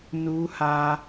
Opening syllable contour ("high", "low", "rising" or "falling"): high